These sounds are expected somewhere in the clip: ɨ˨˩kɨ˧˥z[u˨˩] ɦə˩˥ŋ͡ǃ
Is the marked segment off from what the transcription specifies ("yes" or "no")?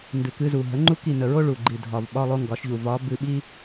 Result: no